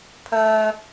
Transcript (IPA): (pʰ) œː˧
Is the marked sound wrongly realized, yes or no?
no